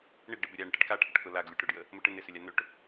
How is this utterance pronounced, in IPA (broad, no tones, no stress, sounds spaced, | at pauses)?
ɳ ɪ ɡ ɖ ɪ b ʏ ɾʲ a ɳ ɪ ʈ ə ɖ k a ʈʰ ə ʈ k ʊ l a ɡ lʲ u ʈ ɾ ʊ ɖ j ə | m ʊ ʈ ɪ n̪ ɪ s ʏ lʲ a n̪ ʏ ʈ